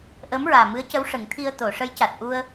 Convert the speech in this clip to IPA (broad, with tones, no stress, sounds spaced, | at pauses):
ʔ əː˧˥ m ɹ aː˨˩ m ɨ˧˥ ə̯ c ə˧˥ w ʂ ə˨˩˦ ŋ t̪ʰ i˧ ə̯ t̪ o˨˩˨ ʂ ə˧˥ j c a˨˩ t̚ ʔ u˧ ə̯